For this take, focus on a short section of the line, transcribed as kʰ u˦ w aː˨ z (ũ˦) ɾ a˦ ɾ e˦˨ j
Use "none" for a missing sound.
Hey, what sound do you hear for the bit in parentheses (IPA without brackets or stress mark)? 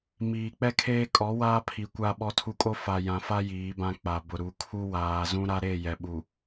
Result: ũ˦